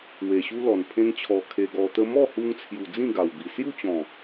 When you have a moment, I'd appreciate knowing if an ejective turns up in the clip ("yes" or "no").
no